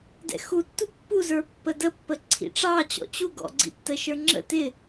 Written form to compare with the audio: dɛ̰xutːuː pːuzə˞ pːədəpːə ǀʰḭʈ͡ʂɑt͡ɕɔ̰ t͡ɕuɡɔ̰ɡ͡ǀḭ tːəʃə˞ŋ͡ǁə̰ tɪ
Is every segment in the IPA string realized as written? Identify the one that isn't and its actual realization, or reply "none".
uː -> u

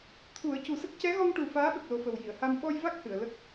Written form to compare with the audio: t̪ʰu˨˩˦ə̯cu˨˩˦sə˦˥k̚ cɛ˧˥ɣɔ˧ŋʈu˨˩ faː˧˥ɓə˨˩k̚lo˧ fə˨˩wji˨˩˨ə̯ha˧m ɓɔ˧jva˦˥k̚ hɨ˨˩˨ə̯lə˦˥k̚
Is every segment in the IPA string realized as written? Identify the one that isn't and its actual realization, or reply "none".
o˧ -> o˨˩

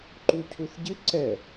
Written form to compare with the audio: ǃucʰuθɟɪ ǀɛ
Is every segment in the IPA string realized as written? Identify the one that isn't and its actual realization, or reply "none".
none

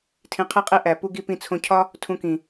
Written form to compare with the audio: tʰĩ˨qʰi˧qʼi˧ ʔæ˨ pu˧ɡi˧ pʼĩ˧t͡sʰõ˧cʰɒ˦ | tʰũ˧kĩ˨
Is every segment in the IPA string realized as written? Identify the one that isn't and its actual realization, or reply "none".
pʼ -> p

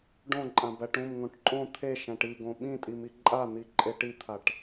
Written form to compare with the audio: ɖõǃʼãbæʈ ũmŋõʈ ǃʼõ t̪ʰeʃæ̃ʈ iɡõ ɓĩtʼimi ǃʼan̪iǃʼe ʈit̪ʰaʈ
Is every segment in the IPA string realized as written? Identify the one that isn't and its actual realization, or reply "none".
none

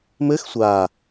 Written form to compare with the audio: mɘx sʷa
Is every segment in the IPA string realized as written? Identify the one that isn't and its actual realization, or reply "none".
none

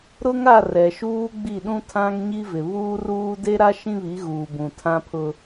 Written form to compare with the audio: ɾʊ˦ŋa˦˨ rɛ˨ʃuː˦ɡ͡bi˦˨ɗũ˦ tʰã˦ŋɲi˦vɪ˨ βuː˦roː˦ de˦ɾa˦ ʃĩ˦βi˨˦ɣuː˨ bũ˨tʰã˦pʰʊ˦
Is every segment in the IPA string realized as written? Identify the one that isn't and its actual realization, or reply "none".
oː˦ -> uː˦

